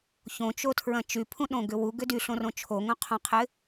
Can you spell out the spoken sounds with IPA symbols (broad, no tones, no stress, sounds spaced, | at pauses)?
ç õ t͡ʃ o tʰ ɹ ɐ̃ t͡ʃ y pʰ ũ ɗ õ ɡ ʏ w u ɡ ʏ d y ɬ õ r õ t͡ʃʰ o ŋ õ qʰ õ qʰ ɪ